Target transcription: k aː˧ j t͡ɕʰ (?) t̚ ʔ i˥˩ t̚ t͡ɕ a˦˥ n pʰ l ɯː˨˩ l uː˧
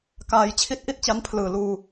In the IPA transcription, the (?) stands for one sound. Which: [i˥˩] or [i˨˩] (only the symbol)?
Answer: i˥˩